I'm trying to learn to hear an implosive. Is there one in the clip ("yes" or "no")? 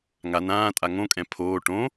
no